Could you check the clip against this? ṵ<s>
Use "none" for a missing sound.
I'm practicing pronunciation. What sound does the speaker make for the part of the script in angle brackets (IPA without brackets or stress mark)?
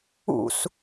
s